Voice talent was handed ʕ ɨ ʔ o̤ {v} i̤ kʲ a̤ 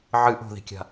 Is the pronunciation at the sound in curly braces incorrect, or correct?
incorrect